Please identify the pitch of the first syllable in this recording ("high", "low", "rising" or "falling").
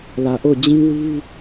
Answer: low